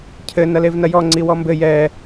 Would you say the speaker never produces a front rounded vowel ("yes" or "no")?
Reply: yes